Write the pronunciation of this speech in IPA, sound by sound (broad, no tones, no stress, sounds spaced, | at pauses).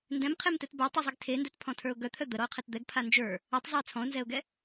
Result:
n d ɛ̃ m qʰ e m t œ t b ə˞ tˤ e zˤ ɛ ɡ tʰ e n d œ t pʰ ɔ̃ tʰ ə˞ ʊ̯ ɡ œ t̪ʰ œ d̪ ə ɾ ɔ ʊ̯ qʰ ɛ t d̪ ɛ ɡ pʰ a n d͡ʒ ə˞ | œ tˤ zˤ a ɪ̯ t͡sʰ ɔ̃ ʊ̯ n z ɛ ʊ̯ ɡ ɛ